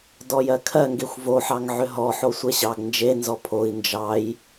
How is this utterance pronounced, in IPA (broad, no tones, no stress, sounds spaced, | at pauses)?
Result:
d ɔ j ɜ kʰ ɜ ŋ ɡ e xʷ v o ħ ɑ ŋ ʕ ʏ ɦ ɔ ħ o sʷ ɛ ɕ ɑ ɡ n d͡ʒ e n z ɔ pʰ o i̯ n d͡ʒ ɑ j